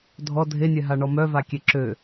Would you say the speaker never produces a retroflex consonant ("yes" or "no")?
no